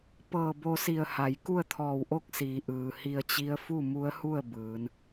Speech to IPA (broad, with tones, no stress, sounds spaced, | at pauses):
p ɤː˧˩ b o˧ s i˧˩ ə̯ h a˩˧ j k u˥˨ ə̯ t̪ʰ ɔː˧˩ w ʔ o˥˨ k̚ s iː˩˧ ʔ ɯː˩ h i˧ ə̯ t͡ɕ i˧˥ ə̯ f u˥˨ m u˧˥ ə̯ h u˥˨ ə̯ b ɯː˩˧ n